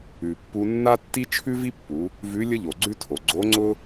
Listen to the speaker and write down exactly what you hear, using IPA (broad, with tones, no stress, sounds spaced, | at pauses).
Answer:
ʉ˩ pː u˧ nː a˥ tː i˥ t͡ʃʰ ʉ˥ v i˥ pː u˩˧ | v ʉ˧˥ lʲ ə˥ ʎ o˩ ɡ͡ǀ ʉ˥ tʰ o˩ ɡ͡ǀ o˧˥ ŋ͡ǀ ʊ˥